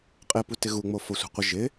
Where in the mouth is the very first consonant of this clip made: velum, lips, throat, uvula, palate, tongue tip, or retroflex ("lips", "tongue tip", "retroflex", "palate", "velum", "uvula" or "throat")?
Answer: uvula